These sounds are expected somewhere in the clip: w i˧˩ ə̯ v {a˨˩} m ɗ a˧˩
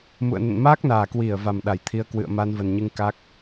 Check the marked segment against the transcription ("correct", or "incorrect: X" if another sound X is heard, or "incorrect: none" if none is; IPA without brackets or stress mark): correct